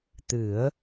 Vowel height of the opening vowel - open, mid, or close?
close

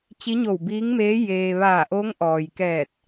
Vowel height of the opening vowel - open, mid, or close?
close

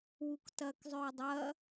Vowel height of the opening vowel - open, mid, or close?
close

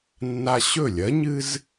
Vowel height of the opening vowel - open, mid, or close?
open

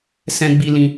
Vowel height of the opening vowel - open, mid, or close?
mid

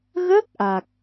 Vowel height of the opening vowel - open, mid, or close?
mid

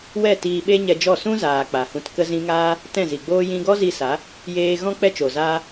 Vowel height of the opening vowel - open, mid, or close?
mid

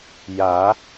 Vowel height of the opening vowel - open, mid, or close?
open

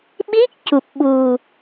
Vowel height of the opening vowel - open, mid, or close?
close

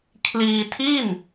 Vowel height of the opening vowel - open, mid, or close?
close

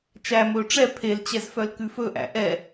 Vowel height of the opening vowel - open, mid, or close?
open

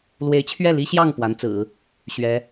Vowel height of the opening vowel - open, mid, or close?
mid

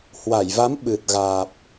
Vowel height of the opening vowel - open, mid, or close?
open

